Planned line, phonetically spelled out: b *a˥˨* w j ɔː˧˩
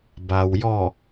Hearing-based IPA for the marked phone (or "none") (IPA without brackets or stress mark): a˩